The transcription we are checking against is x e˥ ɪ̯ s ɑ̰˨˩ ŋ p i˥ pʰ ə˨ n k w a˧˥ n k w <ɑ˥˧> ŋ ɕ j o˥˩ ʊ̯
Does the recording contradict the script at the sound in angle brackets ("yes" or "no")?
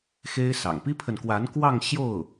no